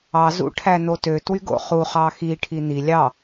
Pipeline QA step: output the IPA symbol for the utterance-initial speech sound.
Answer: ɑ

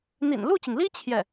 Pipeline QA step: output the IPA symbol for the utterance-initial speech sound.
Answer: n̪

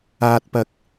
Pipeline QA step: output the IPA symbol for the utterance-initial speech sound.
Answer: aː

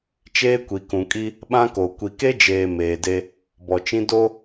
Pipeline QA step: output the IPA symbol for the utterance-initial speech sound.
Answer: t͡ʃ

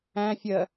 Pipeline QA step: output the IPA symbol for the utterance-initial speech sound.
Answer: æ̃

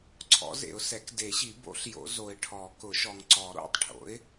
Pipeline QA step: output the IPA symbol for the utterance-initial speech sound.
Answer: ǀʰ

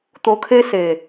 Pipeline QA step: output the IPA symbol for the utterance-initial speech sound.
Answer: t̪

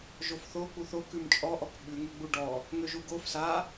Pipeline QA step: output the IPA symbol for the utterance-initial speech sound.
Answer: ʒ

